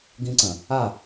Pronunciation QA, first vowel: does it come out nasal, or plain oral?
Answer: nasal